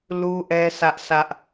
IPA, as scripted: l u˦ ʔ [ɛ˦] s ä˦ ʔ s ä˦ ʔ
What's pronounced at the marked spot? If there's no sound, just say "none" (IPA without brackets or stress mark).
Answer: ɛ˦